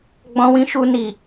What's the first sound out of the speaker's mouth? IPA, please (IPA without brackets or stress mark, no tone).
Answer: ɡ͡b